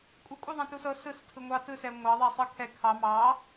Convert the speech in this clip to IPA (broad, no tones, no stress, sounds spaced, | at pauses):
kʷʼ ɯ kʷʼ ɯ ðˤ ɛ̃ t u s ɤ s ɯ s tʰ ɯ ŋʷ ɑ t ɯ s ɛ ŋʷ ɑ ðˤ ɛ sˤ ɯ kʰ ɛ kʰ ɑ m ɑ